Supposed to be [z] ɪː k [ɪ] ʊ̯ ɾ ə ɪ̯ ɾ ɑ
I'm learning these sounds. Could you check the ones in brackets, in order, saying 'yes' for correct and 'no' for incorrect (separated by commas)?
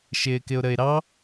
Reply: no, yes